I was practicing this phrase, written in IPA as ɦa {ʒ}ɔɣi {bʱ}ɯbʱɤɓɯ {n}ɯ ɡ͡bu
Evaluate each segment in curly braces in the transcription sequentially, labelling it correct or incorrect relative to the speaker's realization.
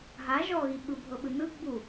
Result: correct, incorrect: ɓ, correct

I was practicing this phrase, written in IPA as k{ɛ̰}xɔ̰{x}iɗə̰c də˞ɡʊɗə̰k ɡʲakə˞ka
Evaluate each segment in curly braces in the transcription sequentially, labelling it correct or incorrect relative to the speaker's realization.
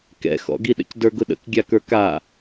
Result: correct, incorrect: ɡ

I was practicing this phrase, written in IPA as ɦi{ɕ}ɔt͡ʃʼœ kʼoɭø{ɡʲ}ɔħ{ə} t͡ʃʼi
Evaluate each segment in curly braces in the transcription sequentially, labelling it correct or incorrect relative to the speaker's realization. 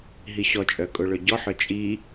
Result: correct, incorrect: ɟ, incorrect: œ

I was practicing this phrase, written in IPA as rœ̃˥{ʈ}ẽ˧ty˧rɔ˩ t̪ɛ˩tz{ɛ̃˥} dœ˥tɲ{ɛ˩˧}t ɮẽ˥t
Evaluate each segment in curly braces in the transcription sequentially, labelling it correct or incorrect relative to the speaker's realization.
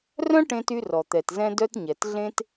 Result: correct, correct, incorrect: ɛ˩

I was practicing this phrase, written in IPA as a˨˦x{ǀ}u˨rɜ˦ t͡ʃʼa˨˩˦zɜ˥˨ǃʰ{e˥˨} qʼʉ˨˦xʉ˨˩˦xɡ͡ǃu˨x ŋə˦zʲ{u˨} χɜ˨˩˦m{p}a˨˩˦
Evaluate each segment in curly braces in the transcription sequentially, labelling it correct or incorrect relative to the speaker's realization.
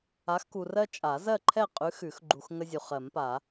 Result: incorrect: k, incorrect: ɛ˥˨, correct, correct

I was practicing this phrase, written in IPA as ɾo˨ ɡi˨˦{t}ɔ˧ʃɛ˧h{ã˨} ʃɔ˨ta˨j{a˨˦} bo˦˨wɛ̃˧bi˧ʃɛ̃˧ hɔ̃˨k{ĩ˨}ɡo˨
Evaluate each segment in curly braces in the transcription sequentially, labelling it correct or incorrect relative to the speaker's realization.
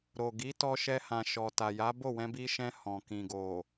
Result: correct, correct, correct, correct

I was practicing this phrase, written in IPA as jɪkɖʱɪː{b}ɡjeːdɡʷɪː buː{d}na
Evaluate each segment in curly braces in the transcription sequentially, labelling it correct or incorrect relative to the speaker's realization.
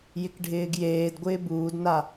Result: incorrect: none, correct

